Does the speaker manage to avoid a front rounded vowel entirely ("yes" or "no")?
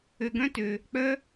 no